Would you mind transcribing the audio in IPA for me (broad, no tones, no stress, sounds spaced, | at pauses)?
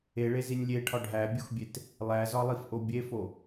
e ɭ e z i nʲ lʲ e ʈʰ ɒ ɖʱ æ bʲ u x bʲ e t | lˠ æ z ɒ lˠ i f ʔ o bʲ e f o